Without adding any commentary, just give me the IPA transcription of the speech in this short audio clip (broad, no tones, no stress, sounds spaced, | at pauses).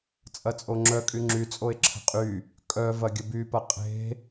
t͡sʼ ɐ t͡sʼ o ŋ͡ǁ œ kʼ y ŋ͡ǁ y t͡sʼ o e̯ ǁʰ ə̤ qʼ y | kʼ œ v ɐ ɡʲ ə b y p ɐ qʼ e̤